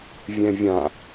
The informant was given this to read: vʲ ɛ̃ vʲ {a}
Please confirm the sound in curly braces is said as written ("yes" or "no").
no